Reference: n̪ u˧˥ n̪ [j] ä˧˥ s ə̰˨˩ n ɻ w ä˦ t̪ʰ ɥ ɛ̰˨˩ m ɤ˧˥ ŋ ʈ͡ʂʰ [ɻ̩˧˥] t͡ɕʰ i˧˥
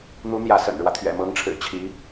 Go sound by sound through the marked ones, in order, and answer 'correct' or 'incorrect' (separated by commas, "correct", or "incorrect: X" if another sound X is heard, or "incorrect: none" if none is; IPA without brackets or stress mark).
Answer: correct, incorrect: ɻ̩˨˩